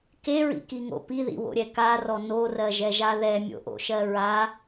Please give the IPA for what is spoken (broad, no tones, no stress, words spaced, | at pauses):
keɹḭkiŋo̰ piðḭwo̰ɾʲɛ karɔ norɜʒɛʒa ðɛmʲo̰ʔo̰ʃɜ ɹa